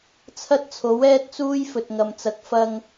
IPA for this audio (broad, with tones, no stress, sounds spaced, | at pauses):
t͡sʰ ɐ˥ t̚ t͡sʰ o˨˥ w ɛː˥ t̚ t͡s uː˥ j f ɵ˨ t̚ ŋ ɐ˨ m t͡s ɐ˨ k̚ f ɐ˧ ŋ